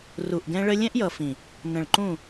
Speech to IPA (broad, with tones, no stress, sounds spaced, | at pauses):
r u˨ ʔ ɡ ɛ̃˧ ɭ ə˧ lʲ ɛ̃˦ ʔ j ʌ˨ f ĩ˨ | n ə̃˨ ɭ ǃ ũ˦˨